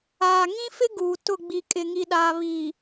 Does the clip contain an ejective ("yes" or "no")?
yes